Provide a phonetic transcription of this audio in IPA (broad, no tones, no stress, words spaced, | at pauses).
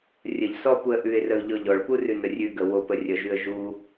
rʲəʎ sɔpuə̯ ʔʉɪ̯rəʊ̯ʎɔ ʎɔɭpurʉnə rʲʉɡə wopə rʲəʒʉə̯ ʒu